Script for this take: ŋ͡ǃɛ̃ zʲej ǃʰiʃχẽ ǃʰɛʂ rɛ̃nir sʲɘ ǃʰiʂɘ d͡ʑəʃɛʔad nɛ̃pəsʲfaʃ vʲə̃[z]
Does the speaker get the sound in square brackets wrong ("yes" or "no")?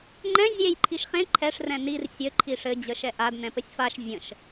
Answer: yes